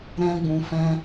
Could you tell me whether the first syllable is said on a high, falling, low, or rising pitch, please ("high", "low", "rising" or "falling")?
high